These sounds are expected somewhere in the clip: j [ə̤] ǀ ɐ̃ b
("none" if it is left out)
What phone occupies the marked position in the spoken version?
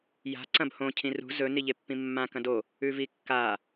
a̤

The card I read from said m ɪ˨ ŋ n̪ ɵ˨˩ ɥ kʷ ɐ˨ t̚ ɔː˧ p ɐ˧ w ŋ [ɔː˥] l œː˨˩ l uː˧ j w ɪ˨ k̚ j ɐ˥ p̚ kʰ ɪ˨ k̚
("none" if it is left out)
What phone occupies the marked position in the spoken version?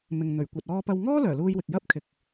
ɔː˥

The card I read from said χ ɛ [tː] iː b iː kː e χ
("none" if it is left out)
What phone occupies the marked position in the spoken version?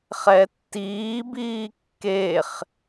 tː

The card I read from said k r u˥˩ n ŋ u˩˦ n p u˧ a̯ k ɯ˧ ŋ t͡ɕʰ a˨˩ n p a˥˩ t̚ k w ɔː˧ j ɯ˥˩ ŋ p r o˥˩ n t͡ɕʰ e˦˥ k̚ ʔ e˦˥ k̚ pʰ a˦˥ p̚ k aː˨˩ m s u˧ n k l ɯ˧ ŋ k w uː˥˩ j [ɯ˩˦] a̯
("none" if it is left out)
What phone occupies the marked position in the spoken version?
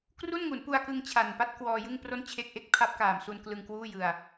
ɯ˧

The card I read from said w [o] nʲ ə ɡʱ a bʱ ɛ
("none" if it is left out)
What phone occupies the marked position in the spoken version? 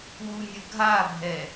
u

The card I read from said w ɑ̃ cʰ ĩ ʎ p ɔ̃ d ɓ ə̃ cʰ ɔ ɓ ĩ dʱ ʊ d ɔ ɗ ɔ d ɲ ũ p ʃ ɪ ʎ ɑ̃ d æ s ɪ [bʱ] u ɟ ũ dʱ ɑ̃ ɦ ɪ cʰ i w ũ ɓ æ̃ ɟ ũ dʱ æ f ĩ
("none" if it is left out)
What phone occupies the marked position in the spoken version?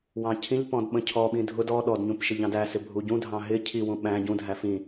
bʱ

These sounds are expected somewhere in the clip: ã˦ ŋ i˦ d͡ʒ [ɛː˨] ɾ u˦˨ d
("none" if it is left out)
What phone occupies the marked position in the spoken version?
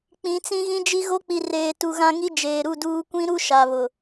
eː˨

